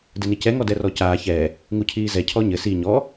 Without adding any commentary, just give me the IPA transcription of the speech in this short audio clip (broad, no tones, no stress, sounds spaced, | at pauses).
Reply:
d ɘ n i c ɛ ŋ ɔ d ɛ r ɔ c aː ç ɛ | ŋ u cʰ iː z ɛ cʰ ɔ ɲ ɘ s i ɲ ɔ